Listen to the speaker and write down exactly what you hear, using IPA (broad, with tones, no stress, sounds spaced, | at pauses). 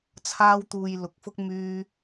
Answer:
t͡sʰ aː˥ w t̪ uː˧ j l ʊ˨˥ k̚ f ʊ˥ k̚ m yː˥